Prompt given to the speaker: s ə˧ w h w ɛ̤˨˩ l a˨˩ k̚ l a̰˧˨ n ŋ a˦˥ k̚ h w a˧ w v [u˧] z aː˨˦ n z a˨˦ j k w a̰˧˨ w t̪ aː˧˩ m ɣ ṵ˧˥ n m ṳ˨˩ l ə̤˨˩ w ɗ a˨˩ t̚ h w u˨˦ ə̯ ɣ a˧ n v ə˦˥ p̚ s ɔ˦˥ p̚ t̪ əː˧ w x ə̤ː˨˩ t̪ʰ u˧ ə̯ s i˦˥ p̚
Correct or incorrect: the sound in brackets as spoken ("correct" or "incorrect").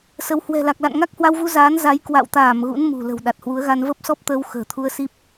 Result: correct